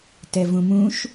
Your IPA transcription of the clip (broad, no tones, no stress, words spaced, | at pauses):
tɛvũmũʃ